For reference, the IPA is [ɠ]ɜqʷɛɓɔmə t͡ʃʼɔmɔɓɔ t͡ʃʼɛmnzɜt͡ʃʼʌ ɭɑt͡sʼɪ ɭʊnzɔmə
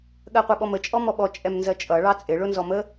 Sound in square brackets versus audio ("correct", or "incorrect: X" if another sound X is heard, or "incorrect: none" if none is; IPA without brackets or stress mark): correct